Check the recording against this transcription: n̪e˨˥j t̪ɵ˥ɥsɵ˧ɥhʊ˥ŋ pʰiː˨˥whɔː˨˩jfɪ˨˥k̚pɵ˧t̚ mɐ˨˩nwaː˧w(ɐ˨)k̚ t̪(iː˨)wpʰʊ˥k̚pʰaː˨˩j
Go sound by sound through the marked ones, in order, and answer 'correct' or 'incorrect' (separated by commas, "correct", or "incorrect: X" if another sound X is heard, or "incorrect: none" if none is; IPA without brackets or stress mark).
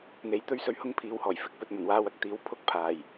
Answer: correct, incorrect: iː˧